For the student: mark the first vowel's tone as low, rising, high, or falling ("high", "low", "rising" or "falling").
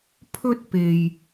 high